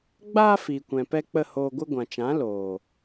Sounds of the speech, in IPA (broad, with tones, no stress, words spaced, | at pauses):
ɡ͡baː˦ fiː˨kʷɛ̃˨pɛ˧ k͡pə˦˨hoː˧ɡʷɨ˦ ɡʷã˨t͡ʃã˨˦ loː˨